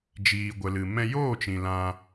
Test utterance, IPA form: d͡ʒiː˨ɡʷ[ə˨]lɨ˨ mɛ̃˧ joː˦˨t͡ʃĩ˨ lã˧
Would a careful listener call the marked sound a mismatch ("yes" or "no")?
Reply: no